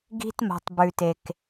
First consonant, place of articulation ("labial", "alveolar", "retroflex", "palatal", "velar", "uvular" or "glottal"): velar